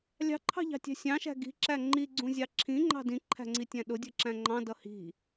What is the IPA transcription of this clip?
lʲ ɑ̤ ǃʰ ɑ̤ ʎ ɑ̤ tʲ æ̤ sʲ ɑ̃ ʃ æ̤ ɡ i̤ ǁ æ ŋ͡ǃ i ɡ͡ǀ ũ zʲ ɑ ǁʰ ĩ ŋ͡ǃ ɑ̤ d ĩ ǃʰ æ̤ ŋ͡ǀ i tʲ æ̃ ɗ ʊ dʲ ə˞ ǁ æ̃ ŋ͡ǃ ɑ̃ d ʌ h i̤

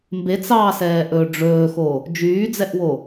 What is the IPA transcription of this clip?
m b e t͡s ɑ s ɛː ʔ ɵː ɖ͡ʐ ɵː x o | d͡ʒ yː d͡z ɛ ʔ w o

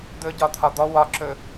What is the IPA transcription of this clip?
d̪ ɵ ɟ ɒ t̪ʰ ɒ d̪ ɔ w ɒ ǁ ɵ

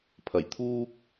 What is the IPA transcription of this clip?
pʰ ɐ˨˩ j t̪ʰ uː˥ k̚

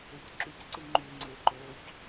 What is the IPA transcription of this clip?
e c ǁ y c ǀ ɨ ŋ͡ǃ y ŋ͡ǀ e ǃ o c

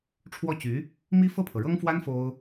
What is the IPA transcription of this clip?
ʈ͡ʂʰ w ɔ˥˩ t͡ɕ y˧˥ | m i˥ f ɤ˥˩ pʰ ɤ˩ ɻ ɤ˥ ŋ f w a˥ n f o˥ ʊ̯

